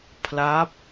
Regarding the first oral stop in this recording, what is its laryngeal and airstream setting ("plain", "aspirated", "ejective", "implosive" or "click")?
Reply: aspirated